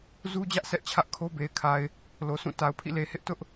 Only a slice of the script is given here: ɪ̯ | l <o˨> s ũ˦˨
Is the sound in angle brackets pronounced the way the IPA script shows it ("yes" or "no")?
yes